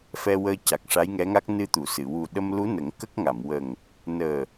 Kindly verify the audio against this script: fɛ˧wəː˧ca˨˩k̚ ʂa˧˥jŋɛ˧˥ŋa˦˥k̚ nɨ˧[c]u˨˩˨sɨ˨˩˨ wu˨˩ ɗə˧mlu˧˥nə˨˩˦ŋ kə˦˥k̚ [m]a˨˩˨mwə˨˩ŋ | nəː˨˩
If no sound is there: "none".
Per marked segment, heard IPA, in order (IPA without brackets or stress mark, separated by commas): t̪, ŋ